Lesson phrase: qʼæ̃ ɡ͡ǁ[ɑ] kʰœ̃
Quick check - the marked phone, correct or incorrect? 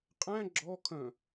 incorrect